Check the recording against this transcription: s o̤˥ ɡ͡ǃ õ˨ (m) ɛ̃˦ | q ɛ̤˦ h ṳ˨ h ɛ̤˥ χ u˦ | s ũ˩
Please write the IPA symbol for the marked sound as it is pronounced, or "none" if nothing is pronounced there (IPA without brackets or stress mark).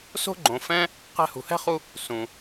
f